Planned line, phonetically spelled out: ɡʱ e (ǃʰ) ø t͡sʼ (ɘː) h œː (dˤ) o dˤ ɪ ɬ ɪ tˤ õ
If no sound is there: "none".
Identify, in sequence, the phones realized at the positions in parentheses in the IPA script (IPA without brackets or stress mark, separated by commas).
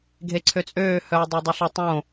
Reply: ǀʰ, øː, dˤ